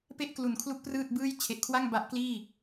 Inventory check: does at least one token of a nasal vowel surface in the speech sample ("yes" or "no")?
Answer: no